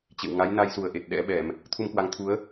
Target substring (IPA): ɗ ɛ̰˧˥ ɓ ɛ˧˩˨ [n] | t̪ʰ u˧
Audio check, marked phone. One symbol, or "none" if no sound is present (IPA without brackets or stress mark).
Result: m